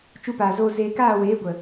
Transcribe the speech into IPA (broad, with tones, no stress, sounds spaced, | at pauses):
t͡ʃ u˧ p aː˨ z oː˧ z eː˧ k aː˦˨ w eː˨˦ ɡʷ ə˨